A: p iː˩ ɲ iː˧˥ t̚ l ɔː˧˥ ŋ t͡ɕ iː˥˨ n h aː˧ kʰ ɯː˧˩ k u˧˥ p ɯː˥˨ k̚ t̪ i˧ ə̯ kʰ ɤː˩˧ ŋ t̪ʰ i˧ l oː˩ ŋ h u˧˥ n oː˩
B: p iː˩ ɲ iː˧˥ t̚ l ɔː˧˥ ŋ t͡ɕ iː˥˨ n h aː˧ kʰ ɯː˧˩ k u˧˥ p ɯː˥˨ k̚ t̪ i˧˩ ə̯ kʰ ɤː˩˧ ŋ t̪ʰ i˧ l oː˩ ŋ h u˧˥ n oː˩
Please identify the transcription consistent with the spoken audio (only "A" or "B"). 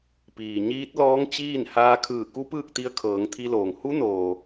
A